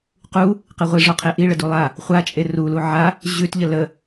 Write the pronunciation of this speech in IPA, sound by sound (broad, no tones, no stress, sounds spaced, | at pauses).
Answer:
q u | q e ʁʷ i ʐ ɔ qʰ e ʔ i ɭ ə d u lˠ a | χʷ a t͡ʃʼ e r u l u ʕ a | ʑ ʉ t ʎ ə l ə